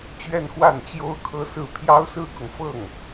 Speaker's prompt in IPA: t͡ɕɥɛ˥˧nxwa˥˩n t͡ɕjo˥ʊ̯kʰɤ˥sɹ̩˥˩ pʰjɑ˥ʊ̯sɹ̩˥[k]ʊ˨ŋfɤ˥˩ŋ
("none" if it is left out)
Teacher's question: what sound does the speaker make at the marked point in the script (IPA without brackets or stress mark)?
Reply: k